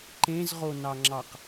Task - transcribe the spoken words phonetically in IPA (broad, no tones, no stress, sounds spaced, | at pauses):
ǃ ẽ z ʁ o n ɑ ŋ͡ǁ ɑ q